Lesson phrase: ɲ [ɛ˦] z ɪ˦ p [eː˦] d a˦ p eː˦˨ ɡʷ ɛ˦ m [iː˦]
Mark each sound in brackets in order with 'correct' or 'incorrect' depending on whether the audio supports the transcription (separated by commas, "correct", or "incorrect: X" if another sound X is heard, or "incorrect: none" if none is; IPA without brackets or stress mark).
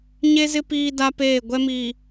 incorrect: e˦, incorrect: iː˦, incorrect: iː˨